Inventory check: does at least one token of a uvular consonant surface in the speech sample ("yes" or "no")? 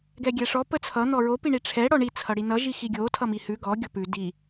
no